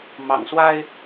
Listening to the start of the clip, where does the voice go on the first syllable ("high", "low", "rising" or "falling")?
low